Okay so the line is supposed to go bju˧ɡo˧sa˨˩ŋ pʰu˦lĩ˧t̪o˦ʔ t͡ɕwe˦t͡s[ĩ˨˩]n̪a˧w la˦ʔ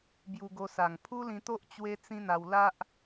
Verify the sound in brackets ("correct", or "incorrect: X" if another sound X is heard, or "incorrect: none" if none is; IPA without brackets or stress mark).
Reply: incorrect: ĩ˦